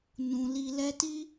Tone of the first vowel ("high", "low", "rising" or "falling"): low